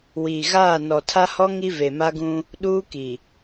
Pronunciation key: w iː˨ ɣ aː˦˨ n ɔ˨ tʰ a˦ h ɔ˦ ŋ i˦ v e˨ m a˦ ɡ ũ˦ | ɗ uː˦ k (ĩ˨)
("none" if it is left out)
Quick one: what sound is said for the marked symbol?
i˨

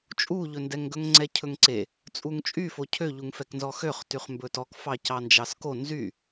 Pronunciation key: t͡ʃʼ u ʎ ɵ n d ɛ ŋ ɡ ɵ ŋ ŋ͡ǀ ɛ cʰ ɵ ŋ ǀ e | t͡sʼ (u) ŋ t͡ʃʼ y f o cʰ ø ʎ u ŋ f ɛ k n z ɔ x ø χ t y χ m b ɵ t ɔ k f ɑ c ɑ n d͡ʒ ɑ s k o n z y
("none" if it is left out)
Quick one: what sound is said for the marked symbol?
u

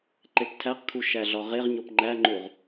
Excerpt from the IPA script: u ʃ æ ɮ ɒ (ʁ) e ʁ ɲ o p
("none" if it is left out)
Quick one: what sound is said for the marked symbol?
ʁ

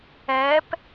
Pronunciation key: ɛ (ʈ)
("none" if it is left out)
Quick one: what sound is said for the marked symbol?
p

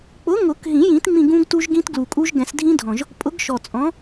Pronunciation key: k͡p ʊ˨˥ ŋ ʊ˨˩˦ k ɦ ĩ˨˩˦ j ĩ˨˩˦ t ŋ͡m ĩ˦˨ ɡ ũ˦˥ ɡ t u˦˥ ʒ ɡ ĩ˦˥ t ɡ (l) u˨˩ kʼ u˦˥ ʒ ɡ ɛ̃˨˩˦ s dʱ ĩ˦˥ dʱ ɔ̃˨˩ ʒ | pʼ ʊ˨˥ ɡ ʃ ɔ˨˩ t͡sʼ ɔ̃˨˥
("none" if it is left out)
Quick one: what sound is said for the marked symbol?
l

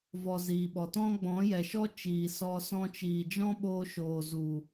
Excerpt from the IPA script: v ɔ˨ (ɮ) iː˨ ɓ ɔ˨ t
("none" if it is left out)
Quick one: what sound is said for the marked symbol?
z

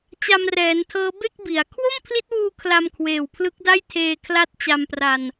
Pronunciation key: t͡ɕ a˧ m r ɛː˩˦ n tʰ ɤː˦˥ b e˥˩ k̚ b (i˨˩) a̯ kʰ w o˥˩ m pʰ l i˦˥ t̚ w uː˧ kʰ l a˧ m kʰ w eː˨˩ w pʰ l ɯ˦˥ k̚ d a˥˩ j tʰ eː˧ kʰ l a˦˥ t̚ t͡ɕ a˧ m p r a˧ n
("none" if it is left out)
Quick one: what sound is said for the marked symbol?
i˩˦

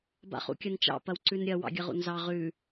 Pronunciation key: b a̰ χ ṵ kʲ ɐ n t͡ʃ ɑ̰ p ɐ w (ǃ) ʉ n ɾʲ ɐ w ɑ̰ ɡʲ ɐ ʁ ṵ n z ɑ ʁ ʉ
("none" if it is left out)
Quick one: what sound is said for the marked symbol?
ǀ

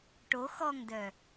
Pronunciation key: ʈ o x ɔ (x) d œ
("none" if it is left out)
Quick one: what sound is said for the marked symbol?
ŋ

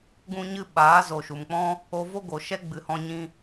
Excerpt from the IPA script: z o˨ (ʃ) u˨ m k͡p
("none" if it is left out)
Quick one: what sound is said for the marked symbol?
ʃ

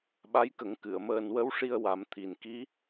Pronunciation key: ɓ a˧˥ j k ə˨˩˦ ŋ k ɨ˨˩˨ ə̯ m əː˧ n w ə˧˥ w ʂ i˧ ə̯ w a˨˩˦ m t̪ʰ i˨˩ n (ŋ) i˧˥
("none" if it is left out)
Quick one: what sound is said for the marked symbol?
k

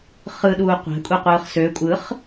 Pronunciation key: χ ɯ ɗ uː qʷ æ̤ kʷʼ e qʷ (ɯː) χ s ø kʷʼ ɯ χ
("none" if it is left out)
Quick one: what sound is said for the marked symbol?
ɯː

